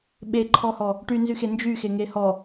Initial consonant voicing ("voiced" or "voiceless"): voiced